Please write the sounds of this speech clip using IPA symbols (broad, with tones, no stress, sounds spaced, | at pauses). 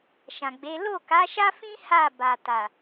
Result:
ʃ ã˨ ɡ͡b e˨˦ l o˦˨ k a˨˦ ʃ a˦ f ĩ˦ h a˦˨ b a˨ t a˨